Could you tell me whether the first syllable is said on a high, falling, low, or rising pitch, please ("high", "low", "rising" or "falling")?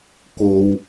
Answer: low